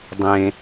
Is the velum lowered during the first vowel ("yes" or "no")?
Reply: yes